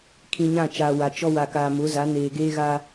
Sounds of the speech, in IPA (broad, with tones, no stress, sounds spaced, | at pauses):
kʰ ĩ˨ ɲ ã˦˨ t͡ʃ aː˨ w a˨ t͡ʃ ɔ˦ w a˨ k aː˨ m ʊ˨˦ z a˨˦ n eː˨ ɡ eː˦ ɣ a˦